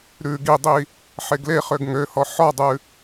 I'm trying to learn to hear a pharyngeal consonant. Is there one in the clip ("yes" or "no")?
yes